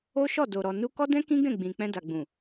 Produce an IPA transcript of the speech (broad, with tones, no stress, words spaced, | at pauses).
o˦ ʃɔ˦˨do˨ɾɔ˨ nu˧ kɔ˦dɛ̃˦ kĩ˦ɡɛ̃˦˨ ɡ͡bĩ˨ k͡pɛ̃˧da˨ɡ͡bũ˨